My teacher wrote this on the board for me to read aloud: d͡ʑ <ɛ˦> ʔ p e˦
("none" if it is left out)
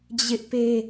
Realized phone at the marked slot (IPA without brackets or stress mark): ɪ˦